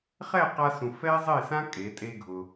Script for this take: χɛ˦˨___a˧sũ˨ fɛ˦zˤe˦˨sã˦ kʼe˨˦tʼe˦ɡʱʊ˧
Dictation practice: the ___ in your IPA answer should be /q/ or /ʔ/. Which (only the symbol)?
q